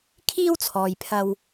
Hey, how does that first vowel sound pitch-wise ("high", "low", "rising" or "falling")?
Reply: high